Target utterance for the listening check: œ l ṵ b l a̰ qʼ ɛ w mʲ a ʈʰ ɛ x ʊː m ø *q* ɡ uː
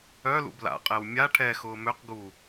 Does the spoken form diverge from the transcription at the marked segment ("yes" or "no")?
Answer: no